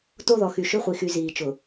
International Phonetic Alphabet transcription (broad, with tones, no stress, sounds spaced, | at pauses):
t o˦˨ ð ɔ˨ x y˨ ʃ ʏ˦˨ χʷ i˨ x y˨ z iː˨ t͡ʃ ʊ˨